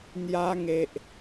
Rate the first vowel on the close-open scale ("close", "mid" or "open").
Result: open